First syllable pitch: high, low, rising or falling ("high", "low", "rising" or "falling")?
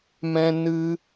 high